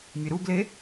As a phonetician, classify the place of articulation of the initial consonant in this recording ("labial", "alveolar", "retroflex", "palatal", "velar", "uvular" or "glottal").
labial